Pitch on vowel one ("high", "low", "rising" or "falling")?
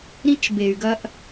high